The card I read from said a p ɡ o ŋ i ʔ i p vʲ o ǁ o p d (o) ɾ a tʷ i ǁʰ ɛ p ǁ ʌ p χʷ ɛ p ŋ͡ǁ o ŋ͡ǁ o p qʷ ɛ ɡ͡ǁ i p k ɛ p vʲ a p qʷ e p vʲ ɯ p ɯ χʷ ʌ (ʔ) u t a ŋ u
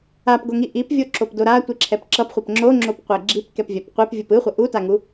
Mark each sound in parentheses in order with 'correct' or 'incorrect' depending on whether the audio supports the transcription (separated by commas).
correct, correct